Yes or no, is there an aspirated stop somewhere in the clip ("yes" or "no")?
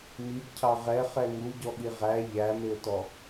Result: yes